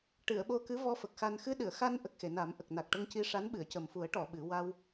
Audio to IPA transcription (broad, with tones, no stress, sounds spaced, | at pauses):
ʈ ɨ˨˩˨ ə̯ ɓ o˧ k ɨ˧˥ v ɔ˧ f ə˨˩ k̚ x a˧ n x ɨ˧ ɗ ɨ˨˩˨ ə̯ x a˧ n ʔ ə˨˩ k̚ x e˨˩˨ n a˨˩˦ m ʔ ə˨˩ k̚ n a˨˩ k̚ ʈ ə˧ ŋ c i˧ ʂ a˧˥ n ɓ ɨ˨˩˨ ə̯ c ə˨˩ m f u˨˩˦ ə̯ ʈ ɔ˨˩˨ ɓ ɨ˨˩˦ w a˧ w